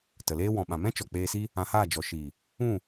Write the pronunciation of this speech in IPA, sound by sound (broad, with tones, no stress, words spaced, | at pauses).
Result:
tə˨leː˦ wɔ̃˨ɓã˨mɛ̃˦ t͡ʃɔ˨k͡peː˧si˦ | ã˧haː˦˨d͡ʒɔ˨ ʃiː˨ | ũ˦˨